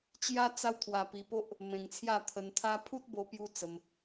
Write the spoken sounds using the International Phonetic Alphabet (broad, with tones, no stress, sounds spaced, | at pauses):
t͡ɕ j a˦ t͡s a˦ w t̪ʰ w a˧ p i˧ p o˦ ʔ | m ẽ˧ ŋ t͡sʰ j a˥˧ t̪ʰ ə˧ n t̪ʰ a˦ pʰ u˦ t̚ b o˧ p j u˦ t͡s ə˧ m